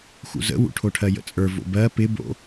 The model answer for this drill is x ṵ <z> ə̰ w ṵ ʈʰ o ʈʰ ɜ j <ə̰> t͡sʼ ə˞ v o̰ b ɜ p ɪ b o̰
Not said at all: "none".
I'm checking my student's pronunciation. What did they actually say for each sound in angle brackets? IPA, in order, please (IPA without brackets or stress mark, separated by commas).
z, ə̰